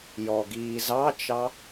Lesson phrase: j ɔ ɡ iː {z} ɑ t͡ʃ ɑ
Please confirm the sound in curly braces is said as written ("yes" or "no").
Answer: yes